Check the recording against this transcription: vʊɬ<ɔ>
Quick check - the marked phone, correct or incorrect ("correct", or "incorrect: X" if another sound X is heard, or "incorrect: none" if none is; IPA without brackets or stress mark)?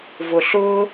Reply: incorrect: ʊ